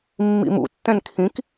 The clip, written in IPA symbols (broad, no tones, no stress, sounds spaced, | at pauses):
mː ḭ m ṵ tː ɛ̃ n kʰ ĩ k